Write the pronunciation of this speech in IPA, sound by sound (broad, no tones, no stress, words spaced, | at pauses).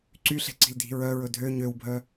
ǀyɬe̤ǀi̤ldʱi̤ ɹœɹɵ dʱø ɲøwbʱœ